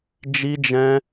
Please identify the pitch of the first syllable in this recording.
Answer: high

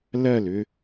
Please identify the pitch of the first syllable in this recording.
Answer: falling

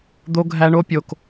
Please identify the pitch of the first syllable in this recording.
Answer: high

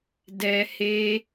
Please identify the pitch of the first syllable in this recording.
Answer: high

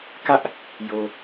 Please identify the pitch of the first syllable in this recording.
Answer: high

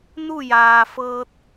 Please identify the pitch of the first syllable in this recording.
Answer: falling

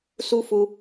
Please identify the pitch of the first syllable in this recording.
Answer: high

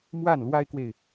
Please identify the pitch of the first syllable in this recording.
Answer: falling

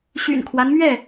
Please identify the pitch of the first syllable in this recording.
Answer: low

